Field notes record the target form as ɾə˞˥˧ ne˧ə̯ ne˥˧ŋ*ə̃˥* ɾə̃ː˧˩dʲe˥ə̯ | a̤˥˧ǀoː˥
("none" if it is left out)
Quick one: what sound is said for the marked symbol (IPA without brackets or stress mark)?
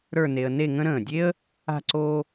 ə̃˥